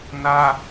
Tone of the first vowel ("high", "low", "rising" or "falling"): high